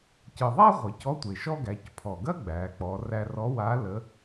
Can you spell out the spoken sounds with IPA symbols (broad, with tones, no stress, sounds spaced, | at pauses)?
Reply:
c ɯ˩ ðˤ a˥ ʁʷ ə˩˧ c ɔ˧˥ tʷ e˩ ʃ ɔ˥ ɡ æ˩˧ c pʰ ɔ˩ ɡ ɐ˥ ɡ͡b æ˩˧ k͡p ɔ˩˧ r æ˧ r ɔ˧˥ w a˧˥ l ə˧˥